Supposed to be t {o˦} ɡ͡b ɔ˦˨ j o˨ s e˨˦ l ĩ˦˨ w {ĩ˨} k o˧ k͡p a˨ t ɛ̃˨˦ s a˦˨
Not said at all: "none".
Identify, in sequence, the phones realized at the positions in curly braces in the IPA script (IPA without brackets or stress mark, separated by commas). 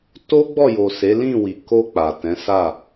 o˦, i˨